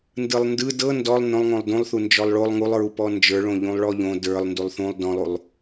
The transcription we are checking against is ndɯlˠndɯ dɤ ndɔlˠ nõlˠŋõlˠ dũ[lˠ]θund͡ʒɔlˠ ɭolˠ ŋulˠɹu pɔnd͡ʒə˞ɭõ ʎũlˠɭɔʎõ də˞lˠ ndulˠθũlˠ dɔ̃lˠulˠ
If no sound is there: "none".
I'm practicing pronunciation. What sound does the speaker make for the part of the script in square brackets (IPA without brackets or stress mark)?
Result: lˠ